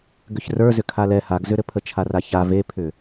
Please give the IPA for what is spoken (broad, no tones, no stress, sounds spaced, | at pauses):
ɡ ʏ ç r ə˞ z ʏ kʰ a l ɛ h a ɡ z ʏ ɾ ɘ pʰ ə t͡ʃʰ a r a ç a v e pʰ ʏ